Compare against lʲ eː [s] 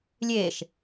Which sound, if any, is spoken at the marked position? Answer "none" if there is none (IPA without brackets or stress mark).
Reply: ʃ